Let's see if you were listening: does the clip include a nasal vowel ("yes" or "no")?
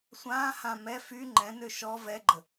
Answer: yes